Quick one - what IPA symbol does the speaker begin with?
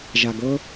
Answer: ʒ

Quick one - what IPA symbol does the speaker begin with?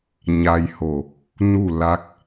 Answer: ɲ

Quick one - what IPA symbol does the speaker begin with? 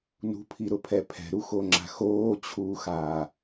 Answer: n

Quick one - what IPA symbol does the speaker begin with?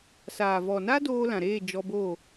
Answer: s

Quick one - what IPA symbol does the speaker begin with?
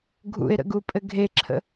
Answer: ɡʱ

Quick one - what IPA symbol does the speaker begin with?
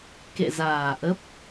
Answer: k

